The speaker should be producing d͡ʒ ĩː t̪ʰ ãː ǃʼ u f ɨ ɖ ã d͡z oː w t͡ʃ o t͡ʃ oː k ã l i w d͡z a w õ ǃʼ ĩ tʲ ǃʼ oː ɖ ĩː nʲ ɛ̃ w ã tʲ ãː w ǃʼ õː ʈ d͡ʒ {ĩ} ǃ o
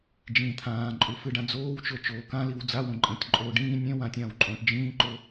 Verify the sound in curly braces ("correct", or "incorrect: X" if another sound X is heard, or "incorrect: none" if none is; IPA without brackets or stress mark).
incorrect: ĩː